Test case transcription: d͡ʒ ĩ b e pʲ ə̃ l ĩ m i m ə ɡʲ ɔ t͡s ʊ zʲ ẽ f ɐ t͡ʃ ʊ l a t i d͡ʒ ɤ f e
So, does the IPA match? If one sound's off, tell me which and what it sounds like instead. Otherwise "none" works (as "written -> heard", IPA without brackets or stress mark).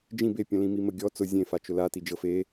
ɐ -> a